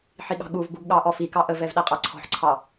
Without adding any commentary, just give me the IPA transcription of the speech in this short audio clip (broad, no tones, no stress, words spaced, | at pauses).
ħiɠɑ̤ɠuvbuɡ ɠɑʔɔfikɑ ʔəvɛv ɗæqʼɑǀʰɔ̤ħǀʰɑ